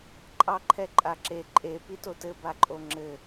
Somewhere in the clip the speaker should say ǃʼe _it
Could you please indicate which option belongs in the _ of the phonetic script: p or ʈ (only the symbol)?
p